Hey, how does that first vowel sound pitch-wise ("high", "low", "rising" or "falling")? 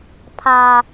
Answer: high